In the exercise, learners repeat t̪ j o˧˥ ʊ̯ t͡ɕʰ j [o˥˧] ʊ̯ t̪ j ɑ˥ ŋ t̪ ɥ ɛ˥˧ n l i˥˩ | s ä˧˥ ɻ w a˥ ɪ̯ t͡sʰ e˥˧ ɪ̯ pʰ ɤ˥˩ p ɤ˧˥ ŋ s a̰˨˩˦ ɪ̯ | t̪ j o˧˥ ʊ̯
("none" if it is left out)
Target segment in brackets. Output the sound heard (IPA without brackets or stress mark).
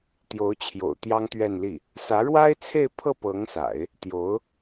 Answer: o̰˨˩